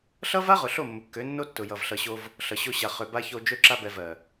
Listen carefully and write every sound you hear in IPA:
ɬ ʌ˦ v a˦ ʁ ʊ˨ ɬ o˦˨ mː ʊ˨ kː ø˨˦ nː o˦ tː ʊ˨ j ʌ˨ v ɬ ʌ˨ ɕ o˧ v | ɬ ʌ˨ ɕ o˧ ɕ a˨ χ ø˨ b a˧ ç o˧ d͡ʒ ø˧ ǁ a˧ b ɛ˨ v ɜ˨

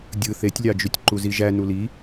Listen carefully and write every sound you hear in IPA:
dʲ ɯ θ e tʲ lʲ ɑ d͡ʒ y tʲ ǃ u z i ʒ æ n u l i

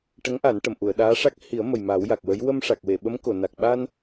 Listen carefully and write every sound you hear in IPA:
ʈ ə˧˥ ŋ ʔ a˨˩˦ n ʈ ə˨˩˨ m ʔ u˨˩˨ ə̯ ɗ aː˧˥ ʂ a˦˥ k̚ h i˨˩˦ ə̯ m ə˨˩ j m a˨˩˦ w j a˨˩ k̚ w ə˧˥ j w ə˧ m ʂ a˨˩ k̚ w e˨˩˨ ɓ ə˧˥ m k o˨˩˨ n a˨˩ k̚ ɓ a˧ n

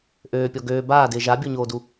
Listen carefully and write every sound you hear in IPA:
ʔ øː pʲ ɔ ɡ øː b aː d ɪː ʒ a bʲ o ɲ oː d u

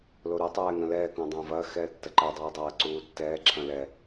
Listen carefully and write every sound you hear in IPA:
l o ɾ u tˤ ɛː ŋ ɐ̃ l ɛː k õ dˤ ɐ̃ː v ɐː x ɛː tː ɐ ǃ ɛ dˤ ɛː dˤ ɐː ǀ uː tː ɛː ǁʰ ɐ̃ l ɛ

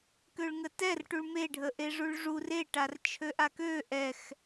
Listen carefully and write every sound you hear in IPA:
k ø ɭ ŋ ə t ɛ r ʈ u ɭ m e ɖʱ ə ʔ e ʐ u ɭ ʐ u r e ʈ a r t͡ʃʰ ø ʔ a k ø ʔ ɛ x

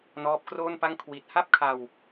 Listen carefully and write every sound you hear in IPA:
n ɔː˦˥ p̚ k r oː˥˩ n p a˥˩ ŋ kʰ w i˨˩ t̚ h a˥˩ p̚ kʰ a˧ w

